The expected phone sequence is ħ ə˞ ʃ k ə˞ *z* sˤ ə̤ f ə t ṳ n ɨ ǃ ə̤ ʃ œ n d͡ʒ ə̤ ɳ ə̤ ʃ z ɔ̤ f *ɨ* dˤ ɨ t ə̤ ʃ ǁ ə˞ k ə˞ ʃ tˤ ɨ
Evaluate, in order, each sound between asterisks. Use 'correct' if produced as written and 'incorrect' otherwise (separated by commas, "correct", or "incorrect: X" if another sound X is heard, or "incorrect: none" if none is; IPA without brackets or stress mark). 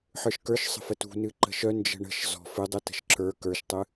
incorrect: ʃ, correct